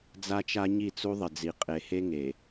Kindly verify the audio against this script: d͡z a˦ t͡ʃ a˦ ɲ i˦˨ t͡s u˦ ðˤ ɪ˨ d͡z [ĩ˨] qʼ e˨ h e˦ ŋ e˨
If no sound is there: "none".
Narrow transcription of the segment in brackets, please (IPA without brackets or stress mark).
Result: i˨